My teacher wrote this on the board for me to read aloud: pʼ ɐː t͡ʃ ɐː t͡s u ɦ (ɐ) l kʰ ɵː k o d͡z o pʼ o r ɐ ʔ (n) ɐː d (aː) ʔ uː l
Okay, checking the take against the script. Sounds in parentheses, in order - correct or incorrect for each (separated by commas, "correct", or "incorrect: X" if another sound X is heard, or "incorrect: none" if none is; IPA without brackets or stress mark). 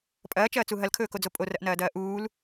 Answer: correct, correct, incorrect: ɐː